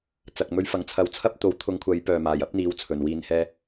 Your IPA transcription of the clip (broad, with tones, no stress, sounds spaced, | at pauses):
t͡s ɐ˨ k̚ m ɵ˧ ɥ f ɐ˨˧ ŋ t͡sʰ ɐ˧ w t͡sʰ ɐ˥ p̚ t̪ o˨˥ w t̪ʰ ʊ˨˧ ŋ kʷʰ ɐ˨˧ j p œː˨ m aː˨˩ j ɐ˥ p̚ n̪ iː˨˥ w t͡sʰ ɵ˨˩ n w iː˨ n h ɛː˧